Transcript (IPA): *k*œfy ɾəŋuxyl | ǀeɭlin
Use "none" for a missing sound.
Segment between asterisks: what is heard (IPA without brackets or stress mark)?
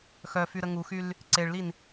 x